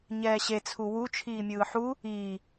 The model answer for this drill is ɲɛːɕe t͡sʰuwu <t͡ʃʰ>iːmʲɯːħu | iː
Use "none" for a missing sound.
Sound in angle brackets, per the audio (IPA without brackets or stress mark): t͡ʃʰ